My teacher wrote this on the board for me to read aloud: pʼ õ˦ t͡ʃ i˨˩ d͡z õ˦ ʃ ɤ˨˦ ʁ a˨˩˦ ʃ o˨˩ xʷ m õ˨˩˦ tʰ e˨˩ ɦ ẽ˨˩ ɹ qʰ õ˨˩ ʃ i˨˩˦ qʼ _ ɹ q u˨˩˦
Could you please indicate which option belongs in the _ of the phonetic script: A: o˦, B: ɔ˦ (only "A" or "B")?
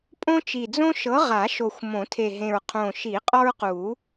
B